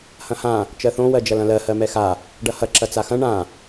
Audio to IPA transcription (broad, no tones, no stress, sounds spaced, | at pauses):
h ɐ̃ h ã | t͡ʃ ɜ θ õ w ɜ d͡ʒ ɐ l ɐ̃ l ɜ h ɜ m ɛ x a | ɖ ɐ h ɐ ǁ ɐ t͡s a x ɐ̃ ɳ ã